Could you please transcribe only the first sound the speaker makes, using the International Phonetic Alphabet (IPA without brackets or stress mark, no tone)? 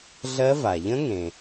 ɮ